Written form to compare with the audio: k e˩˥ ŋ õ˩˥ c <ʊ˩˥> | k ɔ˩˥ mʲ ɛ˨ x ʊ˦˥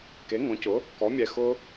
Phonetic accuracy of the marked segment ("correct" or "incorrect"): correct